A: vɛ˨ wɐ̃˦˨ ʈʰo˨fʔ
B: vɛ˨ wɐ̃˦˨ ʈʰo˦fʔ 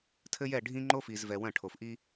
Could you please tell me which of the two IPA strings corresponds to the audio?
A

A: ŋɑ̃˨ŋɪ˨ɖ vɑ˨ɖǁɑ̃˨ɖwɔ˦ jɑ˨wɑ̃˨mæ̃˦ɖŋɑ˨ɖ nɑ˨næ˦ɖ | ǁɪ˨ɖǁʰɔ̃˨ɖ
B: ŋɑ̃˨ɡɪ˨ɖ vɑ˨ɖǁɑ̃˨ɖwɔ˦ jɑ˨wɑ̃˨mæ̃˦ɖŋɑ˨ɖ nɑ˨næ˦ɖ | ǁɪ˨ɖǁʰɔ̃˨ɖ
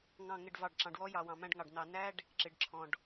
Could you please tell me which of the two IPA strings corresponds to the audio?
A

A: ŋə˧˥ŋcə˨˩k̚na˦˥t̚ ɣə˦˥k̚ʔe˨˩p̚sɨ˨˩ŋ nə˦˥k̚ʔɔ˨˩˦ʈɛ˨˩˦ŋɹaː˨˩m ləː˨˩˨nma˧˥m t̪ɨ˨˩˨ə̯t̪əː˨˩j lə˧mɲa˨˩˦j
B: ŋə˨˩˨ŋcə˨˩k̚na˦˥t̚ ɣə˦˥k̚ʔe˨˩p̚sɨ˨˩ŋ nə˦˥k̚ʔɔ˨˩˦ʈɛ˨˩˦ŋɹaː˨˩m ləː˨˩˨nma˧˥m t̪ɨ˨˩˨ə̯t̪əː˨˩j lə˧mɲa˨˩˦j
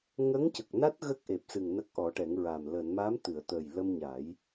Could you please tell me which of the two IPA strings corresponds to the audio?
A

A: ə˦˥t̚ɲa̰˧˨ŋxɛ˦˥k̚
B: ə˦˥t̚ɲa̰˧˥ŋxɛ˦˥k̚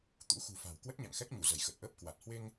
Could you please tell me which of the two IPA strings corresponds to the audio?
A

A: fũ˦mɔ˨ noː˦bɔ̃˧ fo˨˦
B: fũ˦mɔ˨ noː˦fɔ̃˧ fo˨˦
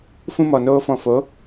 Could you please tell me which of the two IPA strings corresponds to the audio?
B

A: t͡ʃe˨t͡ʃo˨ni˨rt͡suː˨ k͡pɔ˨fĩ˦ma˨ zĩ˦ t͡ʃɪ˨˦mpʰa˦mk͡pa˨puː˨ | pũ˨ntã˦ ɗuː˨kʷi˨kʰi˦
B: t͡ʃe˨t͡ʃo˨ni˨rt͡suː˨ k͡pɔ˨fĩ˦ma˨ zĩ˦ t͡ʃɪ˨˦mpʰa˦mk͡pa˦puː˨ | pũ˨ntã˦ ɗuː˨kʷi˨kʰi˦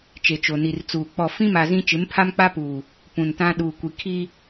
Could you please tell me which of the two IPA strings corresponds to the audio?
B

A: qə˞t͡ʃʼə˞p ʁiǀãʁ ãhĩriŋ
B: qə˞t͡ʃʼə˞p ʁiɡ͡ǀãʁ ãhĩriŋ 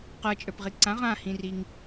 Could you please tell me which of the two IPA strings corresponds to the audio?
A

